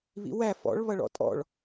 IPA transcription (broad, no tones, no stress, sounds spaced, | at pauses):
β ḭ w æ f ɔ̰ ɭ β ʌ ɭ ɔ̰ tʼ ɔ̰ ɭ